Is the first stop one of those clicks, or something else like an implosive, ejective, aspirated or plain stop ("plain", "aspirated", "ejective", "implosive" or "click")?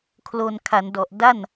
aspirated